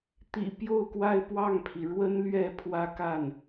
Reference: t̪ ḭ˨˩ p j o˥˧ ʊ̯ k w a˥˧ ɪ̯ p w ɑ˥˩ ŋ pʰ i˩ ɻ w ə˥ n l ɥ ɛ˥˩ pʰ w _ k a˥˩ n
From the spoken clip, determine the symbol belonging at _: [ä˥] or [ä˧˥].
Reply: ä˥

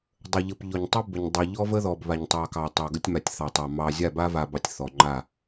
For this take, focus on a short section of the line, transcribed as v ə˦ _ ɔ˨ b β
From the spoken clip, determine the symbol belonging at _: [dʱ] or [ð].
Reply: ð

